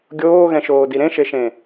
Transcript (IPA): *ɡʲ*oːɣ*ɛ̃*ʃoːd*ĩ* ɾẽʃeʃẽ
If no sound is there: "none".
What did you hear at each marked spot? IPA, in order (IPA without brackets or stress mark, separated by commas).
ɡʲ, ɛ̃, i